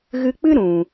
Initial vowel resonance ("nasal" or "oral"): oral